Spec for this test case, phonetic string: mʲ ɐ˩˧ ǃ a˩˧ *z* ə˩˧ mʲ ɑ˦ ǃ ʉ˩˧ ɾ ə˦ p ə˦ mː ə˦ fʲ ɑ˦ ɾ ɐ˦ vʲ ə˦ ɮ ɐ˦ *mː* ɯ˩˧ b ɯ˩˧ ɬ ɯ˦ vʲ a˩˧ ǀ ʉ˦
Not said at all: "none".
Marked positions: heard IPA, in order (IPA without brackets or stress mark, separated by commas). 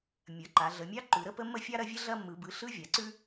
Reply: ɮ, mː